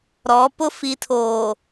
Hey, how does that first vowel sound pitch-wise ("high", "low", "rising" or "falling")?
rising